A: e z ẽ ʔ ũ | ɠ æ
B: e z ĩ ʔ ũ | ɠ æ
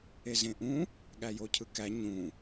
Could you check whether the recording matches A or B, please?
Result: A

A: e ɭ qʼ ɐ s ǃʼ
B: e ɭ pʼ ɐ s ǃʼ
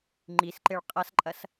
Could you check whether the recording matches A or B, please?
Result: A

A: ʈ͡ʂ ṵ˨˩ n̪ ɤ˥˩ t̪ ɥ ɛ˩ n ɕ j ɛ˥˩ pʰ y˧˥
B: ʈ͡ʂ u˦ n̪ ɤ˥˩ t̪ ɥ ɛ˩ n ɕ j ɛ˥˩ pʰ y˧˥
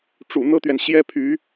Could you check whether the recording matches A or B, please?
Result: A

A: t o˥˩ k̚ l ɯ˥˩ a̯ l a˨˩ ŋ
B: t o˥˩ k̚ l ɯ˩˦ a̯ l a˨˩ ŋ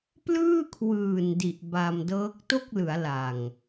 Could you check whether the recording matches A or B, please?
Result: B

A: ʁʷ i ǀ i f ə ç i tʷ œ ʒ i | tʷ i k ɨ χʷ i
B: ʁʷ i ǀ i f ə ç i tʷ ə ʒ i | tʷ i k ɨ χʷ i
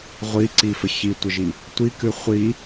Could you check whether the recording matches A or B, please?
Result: B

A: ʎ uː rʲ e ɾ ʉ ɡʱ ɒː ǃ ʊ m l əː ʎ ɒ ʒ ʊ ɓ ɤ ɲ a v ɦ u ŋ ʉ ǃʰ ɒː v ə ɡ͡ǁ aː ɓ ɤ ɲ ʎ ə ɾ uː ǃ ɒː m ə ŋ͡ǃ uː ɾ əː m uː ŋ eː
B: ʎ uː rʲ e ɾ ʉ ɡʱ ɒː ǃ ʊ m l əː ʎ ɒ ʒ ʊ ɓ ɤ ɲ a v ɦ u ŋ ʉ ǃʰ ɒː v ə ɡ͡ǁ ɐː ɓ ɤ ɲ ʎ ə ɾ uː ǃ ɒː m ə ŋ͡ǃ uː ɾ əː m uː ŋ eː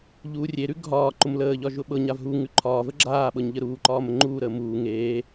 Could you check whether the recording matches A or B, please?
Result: A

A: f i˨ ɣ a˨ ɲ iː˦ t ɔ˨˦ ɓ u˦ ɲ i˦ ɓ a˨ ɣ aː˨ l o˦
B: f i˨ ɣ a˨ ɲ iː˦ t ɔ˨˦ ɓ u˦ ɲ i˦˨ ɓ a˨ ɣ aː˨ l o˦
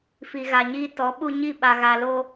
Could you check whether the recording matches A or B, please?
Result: B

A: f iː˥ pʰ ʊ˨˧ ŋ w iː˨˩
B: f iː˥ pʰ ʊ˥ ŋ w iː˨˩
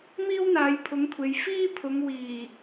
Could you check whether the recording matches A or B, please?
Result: A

